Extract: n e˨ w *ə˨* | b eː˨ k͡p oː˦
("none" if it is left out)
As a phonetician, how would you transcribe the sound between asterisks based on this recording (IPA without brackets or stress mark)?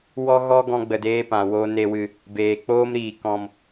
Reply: ɨ˨